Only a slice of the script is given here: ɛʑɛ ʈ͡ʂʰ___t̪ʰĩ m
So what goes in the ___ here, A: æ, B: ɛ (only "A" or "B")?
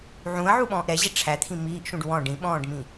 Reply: A